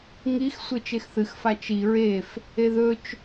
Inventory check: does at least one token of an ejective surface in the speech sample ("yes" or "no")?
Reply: no